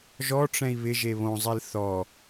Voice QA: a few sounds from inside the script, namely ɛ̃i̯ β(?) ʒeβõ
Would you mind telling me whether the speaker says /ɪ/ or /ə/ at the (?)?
ɪ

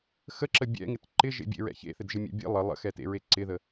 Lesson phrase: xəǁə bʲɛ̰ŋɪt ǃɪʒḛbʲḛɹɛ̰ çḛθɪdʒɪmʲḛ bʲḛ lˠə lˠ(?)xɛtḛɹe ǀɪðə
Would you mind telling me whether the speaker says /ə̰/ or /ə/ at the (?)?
ə̰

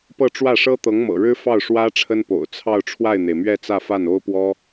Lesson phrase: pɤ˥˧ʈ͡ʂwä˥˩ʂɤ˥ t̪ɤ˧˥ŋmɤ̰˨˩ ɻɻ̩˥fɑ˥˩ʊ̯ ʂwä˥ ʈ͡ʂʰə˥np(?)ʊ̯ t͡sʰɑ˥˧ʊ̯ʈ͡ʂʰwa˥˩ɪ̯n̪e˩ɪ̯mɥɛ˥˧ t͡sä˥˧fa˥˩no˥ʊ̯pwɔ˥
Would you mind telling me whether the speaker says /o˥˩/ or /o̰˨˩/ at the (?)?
o̰˨˩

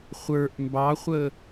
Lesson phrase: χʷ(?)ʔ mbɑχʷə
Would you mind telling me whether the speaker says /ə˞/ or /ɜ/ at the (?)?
ə˞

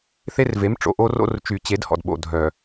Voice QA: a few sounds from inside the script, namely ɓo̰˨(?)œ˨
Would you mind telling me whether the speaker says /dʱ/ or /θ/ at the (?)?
dʱ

